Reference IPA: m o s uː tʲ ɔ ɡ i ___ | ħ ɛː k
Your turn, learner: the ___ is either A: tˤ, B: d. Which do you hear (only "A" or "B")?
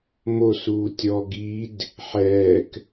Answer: B